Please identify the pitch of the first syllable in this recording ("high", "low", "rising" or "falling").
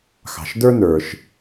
low